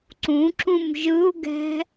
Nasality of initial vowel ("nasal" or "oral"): nasal